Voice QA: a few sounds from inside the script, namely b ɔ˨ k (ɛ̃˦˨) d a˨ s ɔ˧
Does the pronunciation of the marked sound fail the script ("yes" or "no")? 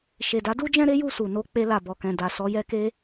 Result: yes